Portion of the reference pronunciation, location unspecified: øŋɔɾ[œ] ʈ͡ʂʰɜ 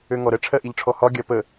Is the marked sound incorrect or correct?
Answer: incorrect